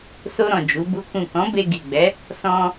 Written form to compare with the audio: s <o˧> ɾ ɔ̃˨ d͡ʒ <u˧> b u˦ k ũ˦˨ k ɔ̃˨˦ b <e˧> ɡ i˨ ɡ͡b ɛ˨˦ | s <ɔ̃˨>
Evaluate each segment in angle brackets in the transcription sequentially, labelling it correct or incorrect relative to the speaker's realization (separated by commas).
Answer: correct, incorrect, correct, incorrect